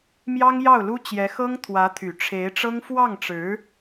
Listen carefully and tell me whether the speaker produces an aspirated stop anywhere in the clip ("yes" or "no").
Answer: yes